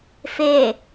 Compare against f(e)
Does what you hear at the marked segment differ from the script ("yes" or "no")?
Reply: no